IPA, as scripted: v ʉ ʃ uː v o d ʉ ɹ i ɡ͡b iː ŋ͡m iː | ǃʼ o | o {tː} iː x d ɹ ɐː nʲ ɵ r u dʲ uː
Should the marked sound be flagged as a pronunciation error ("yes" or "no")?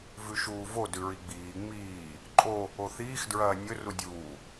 yes